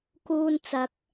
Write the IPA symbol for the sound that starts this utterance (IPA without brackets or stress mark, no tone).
k